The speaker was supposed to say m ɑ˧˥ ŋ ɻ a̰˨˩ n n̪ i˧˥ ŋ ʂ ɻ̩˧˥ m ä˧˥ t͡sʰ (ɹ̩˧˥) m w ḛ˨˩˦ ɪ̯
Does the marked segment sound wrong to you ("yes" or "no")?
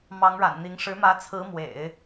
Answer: no